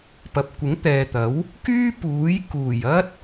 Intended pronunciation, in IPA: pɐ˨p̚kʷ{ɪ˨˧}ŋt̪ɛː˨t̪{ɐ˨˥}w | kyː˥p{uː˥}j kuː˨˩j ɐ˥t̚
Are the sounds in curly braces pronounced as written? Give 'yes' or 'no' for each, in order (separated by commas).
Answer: no, yes, no